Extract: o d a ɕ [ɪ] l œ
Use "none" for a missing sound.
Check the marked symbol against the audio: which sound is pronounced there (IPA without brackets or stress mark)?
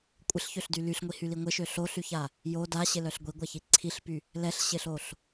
ɪ